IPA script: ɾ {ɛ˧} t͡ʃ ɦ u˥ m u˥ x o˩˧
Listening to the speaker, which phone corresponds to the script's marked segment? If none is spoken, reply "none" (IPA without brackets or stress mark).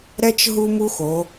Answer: ɛ˧